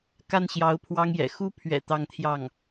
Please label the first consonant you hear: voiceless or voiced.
voiceless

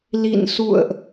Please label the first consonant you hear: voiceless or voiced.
voiced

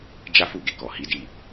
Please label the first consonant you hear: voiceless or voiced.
voiced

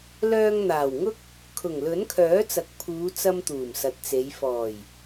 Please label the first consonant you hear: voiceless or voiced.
voiced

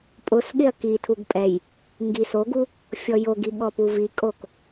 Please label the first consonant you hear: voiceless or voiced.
voiceless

